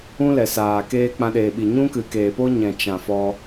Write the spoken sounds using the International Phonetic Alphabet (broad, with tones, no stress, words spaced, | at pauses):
ũ˦lɛ˨saː˨keː˦ k͡pã˧ɗeː˨ɓi˨ ɲũ˦kɨ˨keː˨po˦ ɲɛ̃˨t͡ʃã˨fɔ˧